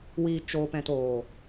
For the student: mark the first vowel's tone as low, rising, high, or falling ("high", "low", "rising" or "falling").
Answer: low